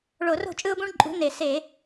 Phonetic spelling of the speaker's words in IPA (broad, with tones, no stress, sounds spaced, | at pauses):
ɭ o˧˩˧ r o̤˥˩ t͡ʃʼ ɯ˦ ʊ̯ b ũ˦ ɳ ǃʼ ṳ˨˦ n e˧˩˧ s e˧˩˧